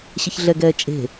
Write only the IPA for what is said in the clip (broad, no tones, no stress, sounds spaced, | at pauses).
ɕ ɪ ç ɮ ɛ ɡ ɛː t͡ʃʼ e̤